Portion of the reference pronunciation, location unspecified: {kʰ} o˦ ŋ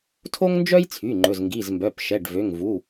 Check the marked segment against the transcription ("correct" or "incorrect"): incorrect